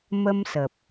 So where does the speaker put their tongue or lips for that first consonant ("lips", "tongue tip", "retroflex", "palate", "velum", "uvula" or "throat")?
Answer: lips